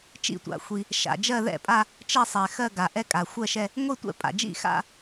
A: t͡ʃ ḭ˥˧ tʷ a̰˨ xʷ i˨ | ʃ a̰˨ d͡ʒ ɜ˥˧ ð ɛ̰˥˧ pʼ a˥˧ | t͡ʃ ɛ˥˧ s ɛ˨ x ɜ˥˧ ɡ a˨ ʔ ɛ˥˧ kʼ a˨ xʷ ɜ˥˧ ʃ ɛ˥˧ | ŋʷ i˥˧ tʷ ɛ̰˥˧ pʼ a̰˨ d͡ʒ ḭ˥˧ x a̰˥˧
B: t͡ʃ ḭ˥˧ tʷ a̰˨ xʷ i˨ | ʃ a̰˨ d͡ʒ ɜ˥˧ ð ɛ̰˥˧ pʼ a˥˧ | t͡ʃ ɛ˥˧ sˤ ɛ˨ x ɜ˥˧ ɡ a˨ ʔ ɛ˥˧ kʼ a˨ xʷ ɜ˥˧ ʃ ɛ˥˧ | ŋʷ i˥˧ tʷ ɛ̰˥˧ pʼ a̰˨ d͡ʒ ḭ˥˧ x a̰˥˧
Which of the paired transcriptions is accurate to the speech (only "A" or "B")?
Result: B